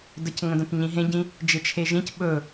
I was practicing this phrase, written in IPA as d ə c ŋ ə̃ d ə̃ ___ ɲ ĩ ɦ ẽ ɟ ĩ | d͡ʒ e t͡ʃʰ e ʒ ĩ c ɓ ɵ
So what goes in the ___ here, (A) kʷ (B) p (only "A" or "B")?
B